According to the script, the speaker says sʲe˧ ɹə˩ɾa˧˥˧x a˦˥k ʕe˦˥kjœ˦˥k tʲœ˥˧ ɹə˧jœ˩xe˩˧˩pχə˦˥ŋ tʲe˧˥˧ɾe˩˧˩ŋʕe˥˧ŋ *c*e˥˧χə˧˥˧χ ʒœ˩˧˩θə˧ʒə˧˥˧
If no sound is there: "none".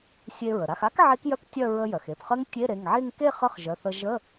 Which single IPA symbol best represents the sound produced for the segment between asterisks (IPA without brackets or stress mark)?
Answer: k